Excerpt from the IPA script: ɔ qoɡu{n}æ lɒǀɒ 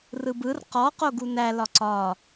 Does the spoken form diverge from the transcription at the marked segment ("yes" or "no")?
no